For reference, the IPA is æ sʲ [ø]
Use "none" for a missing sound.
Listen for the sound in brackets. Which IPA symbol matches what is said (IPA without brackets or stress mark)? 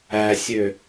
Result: ø